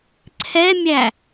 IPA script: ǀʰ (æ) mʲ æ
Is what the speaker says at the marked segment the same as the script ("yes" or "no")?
no